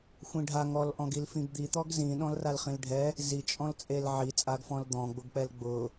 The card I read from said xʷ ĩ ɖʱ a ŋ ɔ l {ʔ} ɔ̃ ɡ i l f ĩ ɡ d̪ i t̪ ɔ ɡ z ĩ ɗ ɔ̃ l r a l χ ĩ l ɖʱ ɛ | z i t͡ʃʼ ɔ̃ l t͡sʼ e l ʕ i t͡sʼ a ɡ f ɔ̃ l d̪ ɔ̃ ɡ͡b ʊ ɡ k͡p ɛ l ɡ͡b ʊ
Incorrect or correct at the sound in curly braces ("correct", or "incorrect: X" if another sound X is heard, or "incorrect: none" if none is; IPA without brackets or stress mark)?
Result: correct